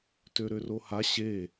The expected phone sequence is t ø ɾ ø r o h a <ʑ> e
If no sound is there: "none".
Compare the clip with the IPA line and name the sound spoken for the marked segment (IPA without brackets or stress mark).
ɕ